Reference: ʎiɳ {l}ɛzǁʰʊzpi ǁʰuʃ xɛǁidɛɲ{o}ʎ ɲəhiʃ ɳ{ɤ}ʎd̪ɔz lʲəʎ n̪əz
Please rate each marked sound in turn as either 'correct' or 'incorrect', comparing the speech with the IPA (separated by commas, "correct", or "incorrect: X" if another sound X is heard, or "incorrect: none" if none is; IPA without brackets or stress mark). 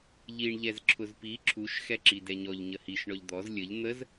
incorrect: ʎ, incorrect: ɔ, incorrect: ɔ